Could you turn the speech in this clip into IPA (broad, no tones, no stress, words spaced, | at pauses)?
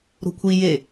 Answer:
ɾo̤kʷʰi je